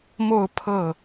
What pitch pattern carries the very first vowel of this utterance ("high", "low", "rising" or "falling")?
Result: falling